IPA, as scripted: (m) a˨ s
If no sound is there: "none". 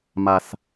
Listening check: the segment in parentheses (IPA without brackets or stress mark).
m